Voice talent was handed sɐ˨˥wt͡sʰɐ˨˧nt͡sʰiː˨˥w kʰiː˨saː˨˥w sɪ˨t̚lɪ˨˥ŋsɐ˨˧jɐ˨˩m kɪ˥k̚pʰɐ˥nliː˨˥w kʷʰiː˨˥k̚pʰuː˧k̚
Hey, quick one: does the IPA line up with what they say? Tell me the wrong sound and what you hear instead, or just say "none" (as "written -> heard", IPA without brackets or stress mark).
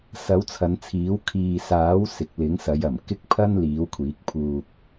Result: t̚ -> k̚